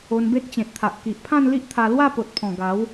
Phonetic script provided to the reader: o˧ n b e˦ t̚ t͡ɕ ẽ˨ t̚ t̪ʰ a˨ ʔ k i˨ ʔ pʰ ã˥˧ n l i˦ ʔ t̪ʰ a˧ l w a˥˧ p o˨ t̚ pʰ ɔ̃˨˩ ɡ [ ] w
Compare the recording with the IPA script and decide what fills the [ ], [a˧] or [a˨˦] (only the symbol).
a˨˦